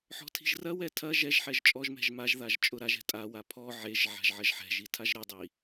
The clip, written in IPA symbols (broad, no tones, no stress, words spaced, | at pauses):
ħɔ̤tʰi̤ʒrɐwɛ tʰɐ ʒɛʒ ħɛʒt͡ʃʼɔʒmɛ̤ʒ maʒðaʒ t͡ʃʼʊɾaʒɛ̤ tʼawa pʰɔ ʕeʒ ʕa̤ʒʕɐʒħɛ̤ʒi tʰaʒɾɛdˤi